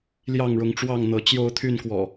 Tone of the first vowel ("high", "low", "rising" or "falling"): falling